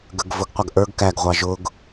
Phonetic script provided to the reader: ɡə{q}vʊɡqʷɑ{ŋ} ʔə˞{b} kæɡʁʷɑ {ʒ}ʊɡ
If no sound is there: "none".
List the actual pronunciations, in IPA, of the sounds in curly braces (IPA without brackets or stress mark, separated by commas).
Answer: ɡ, ɡ, ɡ, ʒ